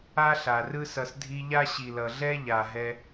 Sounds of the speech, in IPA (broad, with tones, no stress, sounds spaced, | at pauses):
a˦ ɬ a˨ r ɯ˦ s ʌ˧ s dʱ i˧ ʎ a˦ ɕ i˨ l ʌ˨ ɮ ɛ˦ ʎ a˨ ɦ ɛ˧